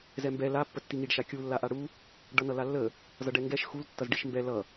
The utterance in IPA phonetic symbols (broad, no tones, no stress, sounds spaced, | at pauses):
z ɛ m b ɛ l a pː ə tː i ŋ i ɖ ʃ a kʲ u lː a ʔ a ɽ u | ɖ ʌ n ʌ l a lː ə | z ʌ ɖ ɛ ŋ ɡ ɛ ʃ x u l tː ʌ z ɖ i ʃ m b ɛ l ʌ